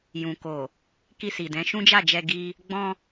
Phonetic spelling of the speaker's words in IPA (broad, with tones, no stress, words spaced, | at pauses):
jũ˨ko˨ | ki˧si˨dɛ̃˨˦ ʃũ˦d͡ʒa˦˨d͡ʒɛ˧ ɡi˧ | ɡ͡bɔ̃˧